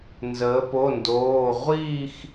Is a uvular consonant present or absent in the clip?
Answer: present